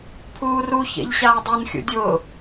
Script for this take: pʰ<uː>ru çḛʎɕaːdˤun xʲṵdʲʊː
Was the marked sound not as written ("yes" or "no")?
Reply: no